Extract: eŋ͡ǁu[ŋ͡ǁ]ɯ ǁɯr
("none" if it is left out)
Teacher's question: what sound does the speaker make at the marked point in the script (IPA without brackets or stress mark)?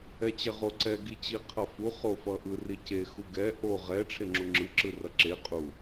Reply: ŋ͡ǁ